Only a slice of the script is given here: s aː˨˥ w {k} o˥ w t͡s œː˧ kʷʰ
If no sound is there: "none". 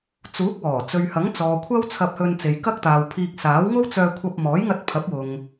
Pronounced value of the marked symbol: ŋ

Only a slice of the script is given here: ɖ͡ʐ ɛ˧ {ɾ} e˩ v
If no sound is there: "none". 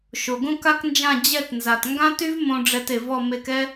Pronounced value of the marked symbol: t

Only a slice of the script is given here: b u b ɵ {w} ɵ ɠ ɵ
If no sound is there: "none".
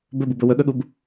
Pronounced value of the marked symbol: w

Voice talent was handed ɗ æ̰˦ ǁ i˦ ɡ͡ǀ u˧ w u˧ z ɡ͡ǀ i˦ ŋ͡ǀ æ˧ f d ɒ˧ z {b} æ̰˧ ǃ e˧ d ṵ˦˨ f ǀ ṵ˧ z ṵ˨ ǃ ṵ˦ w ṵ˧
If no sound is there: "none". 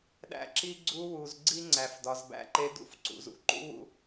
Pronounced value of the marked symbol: b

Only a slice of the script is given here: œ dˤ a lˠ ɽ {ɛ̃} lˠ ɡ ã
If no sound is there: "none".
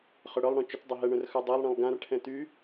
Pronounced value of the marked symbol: ɛ̃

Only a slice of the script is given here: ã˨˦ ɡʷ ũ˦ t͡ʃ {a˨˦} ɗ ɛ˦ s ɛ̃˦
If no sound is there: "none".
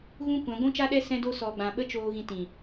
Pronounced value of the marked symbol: a˦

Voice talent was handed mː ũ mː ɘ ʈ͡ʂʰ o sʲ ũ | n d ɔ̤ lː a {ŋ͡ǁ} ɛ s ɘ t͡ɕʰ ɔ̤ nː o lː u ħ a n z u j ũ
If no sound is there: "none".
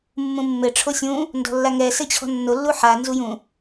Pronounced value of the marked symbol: ŋ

